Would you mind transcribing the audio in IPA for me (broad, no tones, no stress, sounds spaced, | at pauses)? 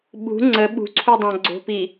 ɓ ṳ ŋ͡ǀ ə ɓ ṳ ǀʰ u dˤ ã ɡ͡ǀ o̤ p i